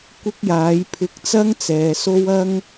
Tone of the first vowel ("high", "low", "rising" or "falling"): high